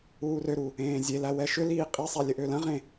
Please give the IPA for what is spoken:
uːrøɾu | ẽːzʲelæ wɛʃʏliː qʼisˤæ lʲəʔølɐ̃ʁẽ

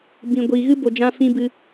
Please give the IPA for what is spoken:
bĩ˨ɡʷiː˨ ɣɨ˧bo˨ d͡ʒã˧ fĩ˧bɨ˧

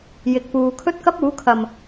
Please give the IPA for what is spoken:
jɪ˨k̚puː˨ kʰɵ˥t̚kɐ˥p̚uː˨˥kʰɐ˨˩m

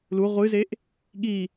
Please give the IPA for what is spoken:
lu ʁʷɨzeʔ | ɠi

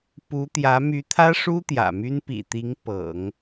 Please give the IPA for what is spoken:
pu˧˥t̪jä˧˥ my˧˥t̪ʰä˥ʂu˥ t̪jä̰˨˩my˥n pḭ˨˩t̪i˧˥ŋ pɤ̰˨˩˦ŋ

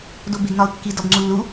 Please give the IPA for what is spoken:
dobeɡnɒʊ̯kːi dɒbŋ͡ǀulːu

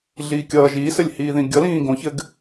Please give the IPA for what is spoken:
ɮiːkʲʌː ʒiːsɘlʲhiːðĩ ɡʲʌlĩː ɡõçɘɡ

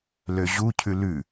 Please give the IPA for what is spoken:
løʑucʰʉ lʉ

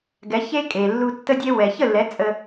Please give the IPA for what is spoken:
ɡɛ˩˥çe˥kʼe˩lːu˧ tːə˧dʲe˧wɛ˩ çə˥˩lːɛ˩˥ t͡sʼə˧

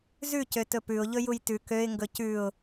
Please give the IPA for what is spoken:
zʉ cøtɵpʉʊ̯ ʎɵjujtʉ køɪ̯ ŋɡɵcʉʊ̯

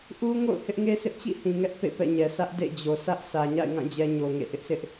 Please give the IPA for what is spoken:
ʔu˦ ŋo̰˦˨ʊ̯hɪ˦ʔŋe˦sʰɪ˦ʔ t͡ɕḭ˦˨hĩ˨ŋɛ˦ʔ pḛ˦˨pɛ̰˦˨ɲɛ˨ sä˦ʔdḛ˦˨d͡ʑo˨ sʰä˦ʔ sä˨ɲa̰˦˨ɪ̯ŋã˦˨ d͡ʑɛ˦ ɲo˨ŋḛ˦˨ ʔɪ˦ʔsɪ˦ʔ

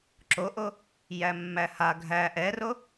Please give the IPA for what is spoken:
ǁoʔo | jæmːæha ɡʱæ ʔɛro

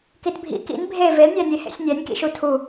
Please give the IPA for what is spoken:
kitbʱḭ kḭn bʱe velnʲænʲehḛsʲ nʲænʲkḭʃu tʰu

